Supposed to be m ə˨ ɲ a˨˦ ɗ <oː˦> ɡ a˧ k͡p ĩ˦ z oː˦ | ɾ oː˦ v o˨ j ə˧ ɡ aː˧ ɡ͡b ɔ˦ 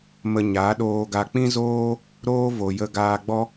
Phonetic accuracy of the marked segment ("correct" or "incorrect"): incorrect